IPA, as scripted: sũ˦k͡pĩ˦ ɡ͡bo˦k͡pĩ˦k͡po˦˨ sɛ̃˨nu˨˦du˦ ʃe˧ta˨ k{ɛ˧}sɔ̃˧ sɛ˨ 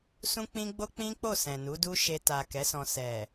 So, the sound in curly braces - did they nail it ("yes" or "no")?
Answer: no